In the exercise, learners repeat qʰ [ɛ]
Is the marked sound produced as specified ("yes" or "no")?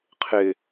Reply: no